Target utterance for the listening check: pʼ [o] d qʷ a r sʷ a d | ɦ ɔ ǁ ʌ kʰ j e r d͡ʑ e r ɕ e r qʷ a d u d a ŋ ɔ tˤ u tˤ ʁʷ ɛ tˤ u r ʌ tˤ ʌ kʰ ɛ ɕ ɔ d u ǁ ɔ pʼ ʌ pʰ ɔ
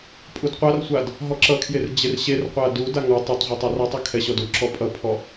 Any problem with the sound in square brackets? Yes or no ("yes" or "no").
yes